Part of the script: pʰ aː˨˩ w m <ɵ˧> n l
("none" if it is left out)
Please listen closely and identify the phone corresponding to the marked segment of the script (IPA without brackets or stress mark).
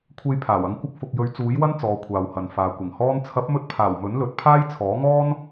ɵ˨˥